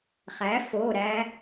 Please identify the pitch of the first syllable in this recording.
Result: rising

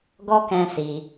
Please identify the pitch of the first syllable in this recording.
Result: high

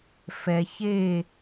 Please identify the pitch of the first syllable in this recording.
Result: low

